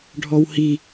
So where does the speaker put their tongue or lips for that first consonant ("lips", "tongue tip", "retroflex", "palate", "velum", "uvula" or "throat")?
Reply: retroflex